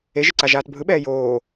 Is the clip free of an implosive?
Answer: no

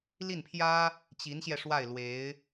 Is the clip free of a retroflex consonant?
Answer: no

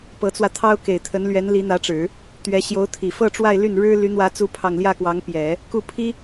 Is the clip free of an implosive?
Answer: yes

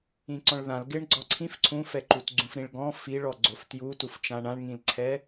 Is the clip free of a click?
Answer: no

